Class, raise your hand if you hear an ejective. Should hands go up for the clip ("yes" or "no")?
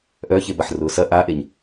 no